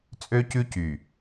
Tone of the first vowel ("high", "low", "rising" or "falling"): high